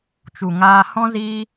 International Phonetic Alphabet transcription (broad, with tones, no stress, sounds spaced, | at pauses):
t͡ʃ u˨ ŋ aː˧ h ɔ̃˦ z iː˦